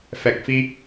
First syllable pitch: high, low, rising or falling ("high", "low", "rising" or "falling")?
low